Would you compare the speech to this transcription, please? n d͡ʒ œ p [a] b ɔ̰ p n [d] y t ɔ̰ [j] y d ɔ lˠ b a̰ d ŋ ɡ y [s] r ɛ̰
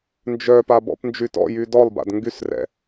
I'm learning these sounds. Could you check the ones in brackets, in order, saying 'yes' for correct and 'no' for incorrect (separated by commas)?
yes, no, yes, yes